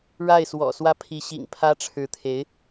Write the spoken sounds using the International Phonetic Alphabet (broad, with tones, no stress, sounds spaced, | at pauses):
ɻ a˥˩ ɪ̯ s w ɔ̰˨˩ s w ä˥˩ pʰ i˧˥ ɕ ḭ˨˩ ŋ pʰ ä˥ ʈ͡ʂʰ ɻ̩˧˥ t̪ʰ e˧˥ ɪ̯